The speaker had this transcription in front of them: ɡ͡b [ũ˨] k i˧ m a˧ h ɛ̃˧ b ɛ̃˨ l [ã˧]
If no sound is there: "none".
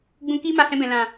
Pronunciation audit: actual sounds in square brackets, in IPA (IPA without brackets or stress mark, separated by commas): ũ˨, ã˨